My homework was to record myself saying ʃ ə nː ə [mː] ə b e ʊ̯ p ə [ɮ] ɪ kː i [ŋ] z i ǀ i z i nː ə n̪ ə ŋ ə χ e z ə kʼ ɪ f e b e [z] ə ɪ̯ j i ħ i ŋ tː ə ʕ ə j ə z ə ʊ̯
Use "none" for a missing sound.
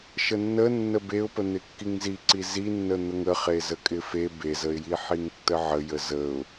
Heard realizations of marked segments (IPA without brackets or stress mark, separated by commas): nː, n̪, ŋ, z